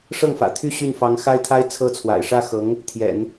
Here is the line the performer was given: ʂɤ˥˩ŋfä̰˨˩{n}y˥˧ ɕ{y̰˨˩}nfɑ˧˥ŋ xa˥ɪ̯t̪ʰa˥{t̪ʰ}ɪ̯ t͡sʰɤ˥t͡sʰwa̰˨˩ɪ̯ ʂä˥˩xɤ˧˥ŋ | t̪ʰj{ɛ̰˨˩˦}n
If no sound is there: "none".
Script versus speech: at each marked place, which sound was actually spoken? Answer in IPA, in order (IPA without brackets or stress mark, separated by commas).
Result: t̪ʰ, y˥˩, none, ɛ̰˨˩˦